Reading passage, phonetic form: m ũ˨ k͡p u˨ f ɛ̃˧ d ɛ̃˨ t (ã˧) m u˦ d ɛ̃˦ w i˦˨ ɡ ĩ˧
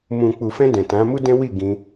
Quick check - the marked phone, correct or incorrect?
incorrect: ã˨˦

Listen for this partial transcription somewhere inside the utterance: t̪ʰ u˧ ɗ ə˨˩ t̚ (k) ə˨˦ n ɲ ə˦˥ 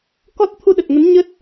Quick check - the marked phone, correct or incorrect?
incorrect: ŋ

